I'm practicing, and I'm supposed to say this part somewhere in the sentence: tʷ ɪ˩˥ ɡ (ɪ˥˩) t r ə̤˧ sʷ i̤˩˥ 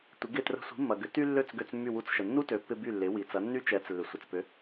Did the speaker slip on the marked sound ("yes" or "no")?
no